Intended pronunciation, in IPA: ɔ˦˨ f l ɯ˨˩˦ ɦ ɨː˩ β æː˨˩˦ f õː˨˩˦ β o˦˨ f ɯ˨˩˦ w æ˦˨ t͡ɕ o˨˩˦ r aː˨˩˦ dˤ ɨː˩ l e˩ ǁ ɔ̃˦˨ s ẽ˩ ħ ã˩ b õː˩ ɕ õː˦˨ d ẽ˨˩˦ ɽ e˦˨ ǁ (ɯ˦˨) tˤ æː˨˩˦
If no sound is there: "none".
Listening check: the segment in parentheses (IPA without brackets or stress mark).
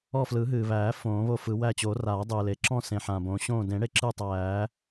ɯ˦˨